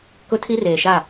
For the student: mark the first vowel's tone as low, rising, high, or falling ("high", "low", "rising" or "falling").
high